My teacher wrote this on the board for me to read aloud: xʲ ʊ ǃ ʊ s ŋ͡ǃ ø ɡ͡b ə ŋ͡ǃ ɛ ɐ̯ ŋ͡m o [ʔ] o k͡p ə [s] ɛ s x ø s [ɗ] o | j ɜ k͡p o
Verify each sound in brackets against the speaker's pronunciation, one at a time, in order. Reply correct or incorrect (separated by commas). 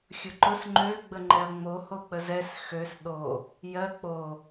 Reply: incorrect, incorrect, correct